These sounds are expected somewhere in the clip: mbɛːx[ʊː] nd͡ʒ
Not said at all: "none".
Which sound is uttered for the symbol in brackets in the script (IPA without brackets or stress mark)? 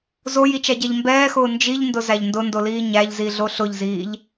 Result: ʊː